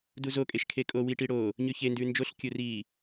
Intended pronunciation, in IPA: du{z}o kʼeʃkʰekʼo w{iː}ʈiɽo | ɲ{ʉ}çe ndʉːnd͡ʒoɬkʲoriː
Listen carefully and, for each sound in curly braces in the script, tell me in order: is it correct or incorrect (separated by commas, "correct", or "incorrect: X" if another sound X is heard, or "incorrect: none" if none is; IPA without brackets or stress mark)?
correct, incorrect: i, correct